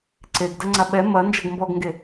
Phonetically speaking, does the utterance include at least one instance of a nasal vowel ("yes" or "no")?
no